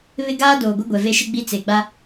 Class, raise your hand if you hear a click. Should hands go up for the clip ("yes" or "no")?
no